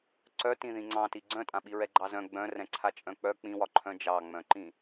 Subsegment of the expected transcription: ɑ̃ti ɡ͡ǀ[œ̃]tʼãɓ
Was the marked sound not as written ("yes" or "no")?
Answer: no